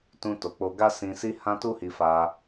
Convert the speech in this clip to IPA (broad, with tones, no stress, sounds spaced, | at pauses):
t ũ˧ t o˨ k͡p o˧ ɡ a˦ s ĩ˧ s i˦ h ã˦ t u˦ h i˧ f a˧